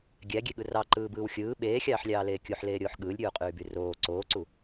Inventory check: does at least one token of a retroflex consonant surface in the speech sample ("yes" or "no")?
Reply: no